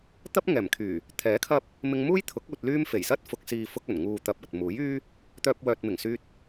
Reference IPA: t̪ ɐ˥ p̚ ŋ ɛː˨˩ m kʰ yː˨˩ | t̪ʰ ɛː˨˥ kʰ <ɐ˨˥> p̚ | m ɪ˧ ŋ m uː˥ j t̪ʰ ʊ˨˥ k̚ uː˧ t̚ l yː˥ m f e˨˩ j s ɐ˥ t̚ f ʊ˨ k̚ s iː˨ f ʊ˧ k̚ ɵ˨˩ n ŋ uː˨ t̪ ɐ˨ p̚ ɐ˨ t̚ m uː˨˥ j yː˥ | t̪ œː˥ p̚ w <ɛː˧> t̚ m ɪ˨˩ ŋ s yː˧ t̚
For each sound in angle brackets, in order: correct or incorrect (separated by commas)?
incorrect, incorrect